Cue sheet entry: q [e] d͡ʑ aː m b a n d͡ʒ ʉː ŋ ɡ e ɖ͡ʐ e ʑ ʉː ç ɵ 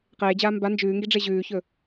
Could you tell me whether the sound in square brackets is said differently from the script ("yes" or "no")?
yes